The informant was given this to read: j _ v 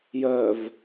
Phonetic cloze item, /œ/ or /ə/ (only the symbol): œ